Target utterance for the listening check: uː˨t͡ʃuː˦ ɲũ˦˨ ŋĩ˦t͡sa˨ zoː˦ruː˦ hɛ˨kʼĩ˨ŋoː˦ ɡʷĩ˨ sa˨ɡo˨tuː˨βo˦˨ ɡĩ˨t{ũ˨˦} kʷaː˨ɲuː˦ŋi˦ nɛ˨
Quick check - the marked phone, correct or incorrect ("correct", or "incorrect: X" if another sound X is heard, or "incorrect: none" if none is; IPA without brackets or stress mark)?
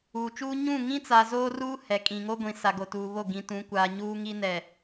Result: correct